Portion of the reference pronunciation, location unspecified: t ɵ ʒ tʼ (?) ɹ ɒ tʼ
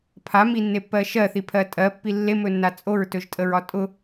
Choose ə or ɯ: ə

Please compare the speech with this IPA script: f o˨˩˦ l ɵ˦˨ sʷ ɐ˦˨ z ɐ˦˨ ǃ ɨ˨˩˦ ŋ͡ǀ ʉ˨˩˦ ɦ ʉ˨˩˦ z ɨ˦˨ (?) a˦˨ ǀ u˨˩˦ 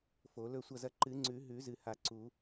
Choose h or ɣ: h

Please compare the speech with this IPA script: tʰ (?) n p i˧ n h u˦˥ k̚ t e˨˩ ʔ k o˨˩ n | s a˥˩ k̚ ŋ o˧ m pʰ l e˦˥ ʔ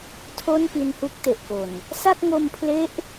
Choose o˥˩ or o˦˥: o˥˩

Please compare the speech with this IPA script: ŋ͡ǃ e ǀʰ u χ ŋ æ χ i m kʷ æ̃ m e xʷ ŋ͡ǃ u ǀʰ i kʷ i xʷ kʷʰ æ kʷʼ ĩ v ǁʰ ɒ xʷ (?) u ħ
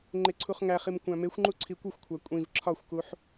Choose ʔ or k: k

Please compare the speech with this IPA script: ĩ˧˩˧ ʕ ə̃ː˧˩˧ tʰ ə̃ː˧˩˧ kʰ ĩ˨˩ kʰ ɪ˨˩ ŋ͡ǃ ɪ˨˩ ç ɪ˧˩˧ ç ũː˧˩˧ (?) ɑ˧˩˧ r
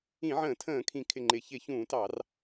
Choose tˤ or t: t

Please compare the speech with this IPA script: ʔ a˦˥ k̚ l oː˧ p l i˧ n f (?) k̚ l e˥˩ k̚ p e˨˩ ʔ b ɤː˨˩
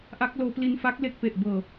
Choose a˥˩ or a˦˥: a˦˥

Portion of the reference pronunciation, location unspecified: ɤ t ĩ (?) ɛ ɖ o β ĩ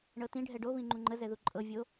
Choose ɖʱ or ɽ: ɖʱ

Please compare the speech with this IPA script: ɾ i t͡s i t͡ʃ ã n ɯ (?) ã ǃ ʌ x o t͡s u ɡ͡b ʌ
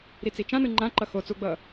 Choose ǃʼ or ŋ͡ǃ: ŋ͡ǃ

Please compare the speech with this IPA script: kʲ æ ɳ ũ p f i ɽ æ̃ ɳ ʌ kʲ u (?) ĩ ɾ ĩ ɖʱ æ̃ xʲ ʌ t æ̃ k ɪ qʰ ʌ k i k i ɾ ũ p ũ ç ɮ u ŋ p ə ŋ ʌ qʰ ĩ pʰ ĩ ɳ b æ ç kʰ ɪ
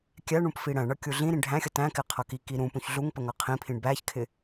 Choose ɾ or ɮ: ɮ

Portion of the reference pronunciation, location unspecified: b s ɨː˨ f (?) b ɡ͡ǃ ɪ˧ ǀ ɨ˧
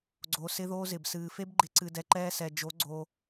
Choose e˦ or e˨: e˦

